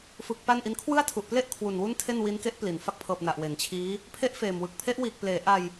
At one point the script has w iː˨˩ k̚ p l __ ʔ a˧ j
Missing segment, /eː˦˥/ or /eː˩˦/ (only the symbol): eː˩˦